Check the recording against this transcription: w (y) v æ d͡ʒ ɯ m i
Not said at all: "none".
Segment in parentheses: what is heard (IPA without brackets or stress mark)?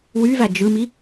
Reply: y